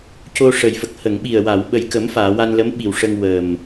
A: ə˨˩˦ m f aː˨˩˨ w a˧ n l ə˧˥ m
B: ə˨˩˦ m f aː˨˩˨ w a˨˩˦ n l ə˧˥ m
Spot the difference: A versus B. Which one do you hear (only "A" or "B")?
A